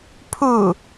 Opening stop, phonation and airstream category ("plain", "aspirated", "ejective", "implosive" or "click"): aspirated